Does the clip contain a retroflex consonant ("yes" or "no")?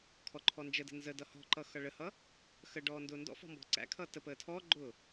yes